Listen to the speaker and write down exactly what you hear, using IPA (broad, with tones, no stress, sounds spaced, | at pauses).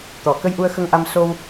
t̪ ɔ˨˩˨ k ə˧ j ʔ u˧ ə̯ x ə˧ ŋ ʔ a˧ m s o˧ w